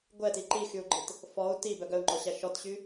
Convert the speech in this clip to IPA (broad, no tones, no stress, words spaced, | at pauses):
ɡʷɛti ǃixyu̯ɡ͡ǃit | fɔu̯ ti bœɡœu̯ŋ͡ǃɔɕæ ʃɔtɕy